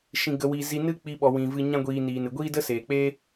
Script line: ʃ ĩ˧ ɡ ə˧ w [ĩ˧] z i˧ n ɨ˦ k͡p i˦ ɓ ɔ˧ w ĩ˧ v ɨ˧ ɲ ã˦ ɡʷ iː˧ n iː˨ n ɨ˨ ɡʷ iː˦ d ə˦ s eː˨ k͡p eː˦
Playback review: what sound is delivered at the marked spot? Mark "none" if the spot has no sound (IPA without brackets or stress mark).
i˧